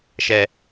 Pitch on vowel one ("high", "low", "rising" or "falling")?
low